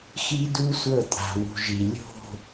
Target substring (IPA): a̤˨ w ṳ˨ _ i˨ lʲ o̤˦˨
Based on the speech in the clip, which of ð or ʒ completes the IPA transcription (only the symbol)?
ʒ